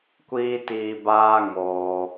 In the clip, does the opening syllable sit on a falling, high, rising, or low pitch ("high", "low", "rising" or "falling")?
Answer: high